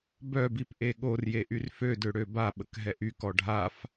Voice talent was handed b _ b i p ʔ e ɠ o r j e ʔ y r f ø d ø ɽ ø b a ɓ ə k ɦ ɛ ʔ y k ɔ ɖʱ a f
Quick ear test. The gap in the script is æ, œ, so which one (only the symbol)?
œ